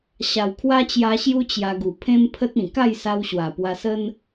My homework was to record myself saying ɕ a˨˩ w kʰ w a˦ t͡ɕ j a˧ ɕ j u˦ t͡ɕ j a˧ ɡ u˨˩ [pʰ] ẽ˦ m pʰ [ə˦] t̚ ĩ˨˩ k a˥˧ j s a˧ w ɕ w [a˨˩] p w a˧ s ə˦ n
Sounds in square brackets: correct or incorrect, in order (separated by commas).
correct, correct, correct